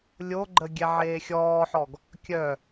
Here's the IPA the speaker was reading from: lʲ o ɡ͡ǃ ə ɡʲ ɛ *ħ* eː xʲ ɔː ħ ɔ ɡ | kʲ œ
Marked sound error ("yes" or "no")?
yes